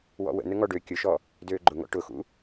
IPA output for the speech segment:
w ɔ̰ w ə̰ n ə ŋ ɔ ɖ ø kʲ ʊ ʃ ɔ | d øː ɡ͡ǃ ʊ ŋ ɔ̰ ʈ ʊ x ṵ

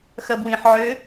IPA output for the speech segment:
x ɐ b w ĩ ħ ʕ ø

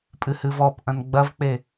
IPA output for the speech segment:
pʼ ɨ h ɨ v ɔ p ʔ ɐ̃ n ɡ͡b ɐ v k͡p e

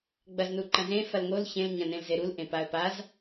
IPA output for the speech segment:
ɡ͡b ɐ z n u ǃ ɐ̃ z ẽ f ɐ l ŋ o l ç ẽ l ɲ ɐ̃ n ẽ l z e ɾ u l ʔ ẽ p a ə̯ p a z

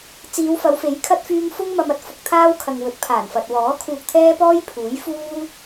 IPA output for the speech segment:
t͡s iː˨˧ w f ɐ˨˧ w f e˨˥ j kʰ ɐ˥ t̚ f yː˧ ŋ f ʊ˥ ŋ m ɐ˧ m ɐ˨˥ t̚ f ʊ˨˥ k̚ t̪ʰ aː˥ w kʰ ɐ˨ ŋ w ɵ˨˥ t̚ pʰ aː˨˩ n f ɐ˨ t̚ w ɔː˨˥ kʰ uː˧ k̚ t̪ʰ ɛː˥ p ɔː˥ j pʰ uː˨˥ j f uː˥

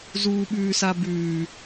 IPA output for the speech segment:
z uː ɓ ʉː s a b ʉː

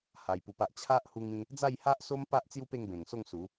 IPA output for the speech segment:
h a˧ j p u˧ p a˦ ʔ t͡ɕʰ a˦ ʔ h u˧ ŋ ĩ˦ | d͡z a˥˧ j h a˦ ʔ s o˦ m p a˦ ʔ t͡s j u˦ p e˥˧ ŋ b ẽ˨˩ ŋ s o˥˧ ŋ s u˨˦

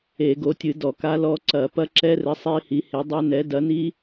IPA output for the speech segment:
e˧˩˧ ɡ o˨˥ tʲ ɨ˧˩˧ d ɔ˧˩˧ k a˦˥ l ɔ˦˥ ǀ ɐ˧˩˧ p ɐ˦˥ ǁ ɛ˦˥ r ɘ˨˥ sˤ i˦˥ h i˨˥ h e˨˥ dˤ ɐ˦˥ n ɛ˨˥ d ɐ˨˥ n i˦˥

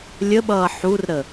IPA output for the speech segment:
lʲ ə ɓ ʌː ħ u r ɾ ə

